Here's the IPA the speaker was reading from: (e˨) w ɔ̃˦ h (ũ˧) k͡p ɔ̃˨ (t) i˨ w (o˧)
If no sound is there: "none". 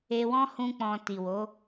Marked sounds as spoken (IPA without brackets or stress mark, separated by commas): e˧, ũ˧, t, o˨˦